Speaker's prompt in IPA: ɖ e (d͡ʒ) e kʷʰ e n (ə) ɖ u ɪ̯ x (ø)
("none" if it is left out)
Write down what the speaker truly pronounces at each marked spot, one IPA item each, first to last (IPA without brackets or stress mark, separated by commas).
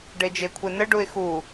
d͡ʒ, ə, u